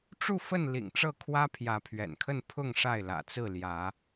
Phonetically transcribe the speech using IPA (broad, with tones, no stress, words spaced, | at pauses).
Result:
ʈ͡ʂu˥˨fə˥˨n lḭ˨˩ŋʈ͡ʂɤ˥˨kʰwä˦ pʰjä˨˦pʰɥɛ̰˨˩nkʰə˥˨n pʰʊ˥˨ŋ ʂa˥˨ɪ̯lä̰˨˩t͡sɹ̩˥˨ljä˨˦